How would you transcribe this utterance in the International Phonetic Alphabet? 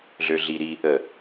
ɮ ø ɮ i ɾ i | ə

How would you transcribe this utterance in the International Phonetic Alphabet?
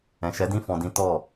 ɛ̃˨ ʃ ɛ˨˦ d ĩ˧ f ɔ̃˨ d ĩ˨˦ t ɔ˦˨

